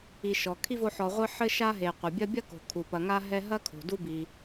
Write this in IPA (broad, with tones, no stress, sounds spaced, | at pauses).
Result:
i˨ ʃ ɔ˩ kʰ i˥ v o˦ ħ ɔ˨ ʁʷ ɨ˦ ħ ɘ˥ ʃ a˥ ɦ e˨ qʷ ɐ˩ bʲ ɐ˦ bʲ ɐ˥ k o̤˩ kʰ u˩ p ɐ˨ ŋ a˥ ɦ ɛ˦ ɦ ɐ˥ kʰ o̤˩ d u˦ b i˩